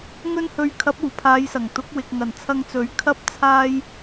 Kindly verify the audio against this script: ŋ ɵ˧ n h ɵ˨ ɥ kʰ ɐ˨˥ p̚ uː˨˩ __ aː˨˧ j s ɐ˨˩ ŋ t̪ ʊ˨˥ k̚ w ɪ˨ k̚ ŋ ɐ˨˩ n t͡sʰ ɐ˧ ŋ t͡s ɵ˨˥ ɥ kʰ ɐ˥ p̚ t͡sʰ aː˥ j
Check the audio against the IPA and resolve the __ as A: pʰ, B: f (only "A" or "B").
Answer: A